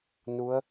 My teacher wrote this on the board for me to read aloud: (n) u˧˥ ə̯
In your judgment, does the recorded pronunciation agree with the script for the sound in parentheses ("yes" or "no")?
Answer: yes